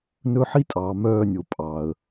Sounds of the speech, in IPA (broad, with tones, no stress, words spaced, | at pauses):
nɵ˦ ħi˦tʼɑː˨ mœː˦˨nʲo˨ pʼɑ˨ə̯